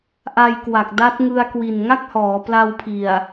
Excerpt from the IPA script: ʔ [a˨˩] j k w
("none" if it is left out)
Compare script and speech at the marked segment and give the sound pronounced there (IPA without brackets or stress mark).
a˧